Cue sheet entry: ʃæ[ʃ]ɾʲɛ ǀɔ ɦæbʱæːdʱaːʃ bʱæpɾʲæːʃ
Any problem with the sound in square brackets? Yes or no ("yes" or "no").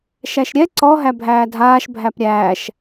no